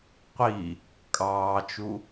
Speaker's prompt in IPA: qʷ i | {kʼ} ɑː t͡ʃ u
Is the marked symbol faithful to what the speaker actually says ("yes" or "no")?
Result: yes